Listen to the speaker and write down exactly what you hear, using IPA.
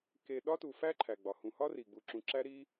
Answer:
k e˨ ɗ ɒ˥ t u˨ f æ˥ ǃʰ æ˩ ɡ͡b ɒ˩ h ũ˨ h ɒ˥ r i˩ ɡ͡b u˨ ǁ ũ˨ ǁ æ˥ ɾ i˦

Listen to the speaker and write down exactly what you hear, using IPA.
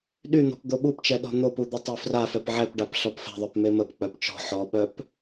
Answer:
ɗ y n̪ ɔ̤ p d̪ o ɓ u p t͡ʃ ɛ ɗ ɔ̤ n̪ o p u d̪ ə tˤ ø f r a f ɛ p ʕ ɛ p ɖ a p ɬ ɔ p f ɛ̤ ðˤ œ p m e m ə p k͡p œ p t͡ʃ ɔ̤ ħ ɔ ɓ œ p

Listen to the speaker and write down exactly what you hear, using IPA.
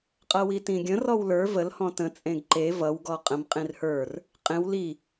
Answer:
qʼ ʌ w i t ĩ ɡʲ ə̃ r ɔ w l ə˞ v ə l h ɔ̃ t ə̃ t͡sʼ ẽ ɡ ǃ e v ʌ w ɡ ɔ qʼ ə̃ m qʼ ĩ r h ə˞ r | qʼ ẽ w l i

